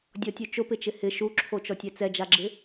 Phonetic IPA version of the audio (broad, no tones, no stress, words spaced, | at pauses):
dʲɔtʲu t͡ʃʊpɪt͡ʃɪ hɪ ʃuǁʰot͡ʃɔtʲɛ t͡sɛd͡ʒaɡ͡ǁɪ